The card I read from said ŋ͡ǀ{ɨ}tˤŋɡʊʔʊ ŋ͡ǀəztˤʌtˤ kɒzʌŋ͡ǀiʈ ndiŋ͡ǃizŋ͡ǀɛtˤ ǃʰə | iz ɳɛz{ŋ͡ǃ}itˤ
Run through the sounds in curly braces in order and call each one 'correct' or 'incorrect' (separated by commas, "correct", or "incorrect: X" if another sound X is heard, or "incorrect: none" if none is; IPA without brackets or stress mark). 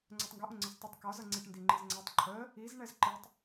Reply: incorrect: ɛ, incorrect: ǃ